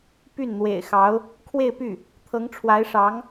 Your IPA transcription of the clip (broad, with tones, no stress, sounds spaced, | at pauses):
p y˥˩ n n̪ w ḛ˨˩ ɪ̯ x ɑ˧˥ ʊ̯ | kʰ w e˥˧ ɪ̯ p y˥˩ | t̪ʰ ɤ˧˥ ŋ ʈ͡ʂʰ w a˧˥ ɪ̯ ʂ ɑ˧˥ ŋ